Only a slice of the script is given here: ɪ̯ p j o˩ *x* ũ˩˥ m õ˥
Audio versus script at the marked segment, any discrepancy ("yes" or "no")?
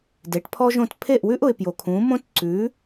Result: yes